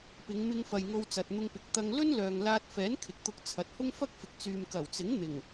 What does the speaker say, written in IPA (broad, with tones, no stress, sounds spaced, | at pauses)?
p ɪ˨˧ ŋ m ɪ˧ ŋ f ɐ˨ j ŋ o˧ w t͡s ɐ˨ t̚ n̪ ʊ˧ ŋ p ɪ˨˥ k̚ t̪ ɐ˧ ŋ l ɵ˥ n l œː˨ ŋ l aː˧ t̚ f ɛː˨˥ n kʰ ɪ˨ k̚ t̪ ʊ˧ k̚ t͡sʰ ɐ˨˥ t̚ h ʊ˥ ŋ f ɐ˥ k̚ f ɪ˨ k̚ t͡s yː˨ m k ɐ˨˩ w t͡s ɪ˨˥ ŋ n̪ ɪ˨˩ ŋ